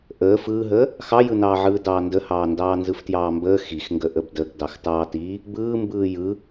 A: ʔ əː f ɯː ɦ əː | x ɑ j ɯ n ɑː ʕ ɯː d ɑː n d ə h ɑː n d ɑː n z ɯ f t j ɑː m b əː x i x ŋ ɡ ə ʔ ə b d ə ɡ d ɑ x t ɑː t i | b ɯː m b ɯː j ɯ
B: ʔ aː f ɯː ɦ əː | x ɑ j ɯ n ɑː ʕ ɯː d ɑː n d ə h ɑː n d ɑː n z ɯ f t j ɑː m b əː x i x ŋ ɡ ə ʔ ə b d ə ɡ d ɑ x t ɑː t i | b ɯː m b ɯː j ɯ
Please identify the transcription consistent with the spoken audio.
A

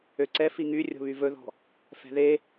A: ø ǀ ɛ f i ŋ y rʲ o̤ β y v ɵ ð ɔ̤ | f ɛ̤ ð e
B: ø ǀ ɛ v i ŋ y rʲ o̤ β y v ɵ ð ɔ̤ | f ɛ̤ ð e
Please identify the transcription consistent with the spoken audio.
A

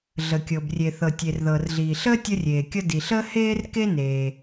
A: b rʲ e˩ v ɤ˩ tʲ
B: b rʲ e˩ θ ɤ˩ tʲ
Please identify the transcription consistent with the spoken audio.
B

